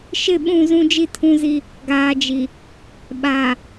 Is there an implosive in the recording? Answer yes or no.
yes